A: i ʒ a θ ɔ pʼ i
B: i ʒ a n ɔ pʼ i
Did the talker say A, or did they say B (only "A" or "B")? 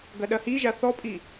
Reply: A